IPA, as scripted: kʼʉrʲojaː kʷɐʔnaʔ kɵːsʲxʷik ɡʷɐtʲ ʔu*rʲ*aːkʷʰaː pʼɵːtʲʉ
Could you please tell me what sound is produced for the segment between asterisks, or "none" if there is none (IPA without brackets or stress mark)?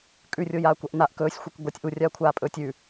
rʲ